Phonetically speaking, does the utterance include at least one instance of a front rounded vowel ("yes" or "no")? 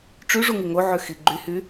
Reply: yes